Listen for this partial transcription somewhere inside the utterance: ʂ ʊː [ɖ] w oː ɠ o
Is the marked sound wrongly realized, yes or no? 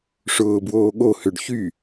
yes